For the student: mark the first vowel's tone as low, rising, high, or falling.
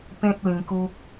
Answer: high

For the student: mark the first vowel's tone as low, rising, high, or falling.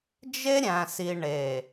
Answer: high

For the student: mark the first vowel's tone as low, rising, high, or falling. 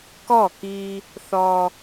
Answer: falling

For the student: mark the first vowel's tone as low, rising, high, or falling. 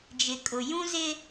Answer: low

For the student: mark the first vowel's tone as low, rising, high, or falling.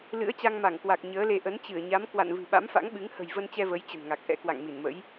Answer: rising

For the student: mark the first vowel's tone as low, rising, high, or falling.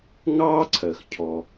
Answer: high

